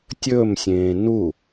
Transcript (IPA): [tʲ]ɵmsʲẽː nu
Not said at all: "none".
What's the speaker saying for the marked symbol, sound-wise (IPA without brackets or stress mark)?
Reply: tʲ